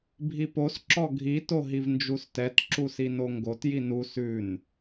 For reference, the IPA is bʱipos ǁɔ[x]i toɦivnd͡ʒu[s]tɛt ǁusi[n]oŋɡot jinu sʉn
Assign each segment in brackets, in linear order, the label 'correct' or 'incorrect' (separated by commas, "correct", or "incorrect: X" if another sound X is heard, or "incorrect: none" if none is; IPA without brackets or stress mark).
incorrect: ɡʱ, correct, correct